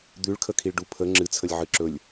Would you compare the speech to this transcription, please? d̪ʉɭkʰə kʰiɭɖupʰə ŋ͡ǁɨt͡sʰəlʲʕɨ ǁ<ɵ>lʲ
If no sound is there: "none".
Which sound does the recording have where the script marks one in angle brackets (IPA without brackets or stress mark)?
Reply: ɵ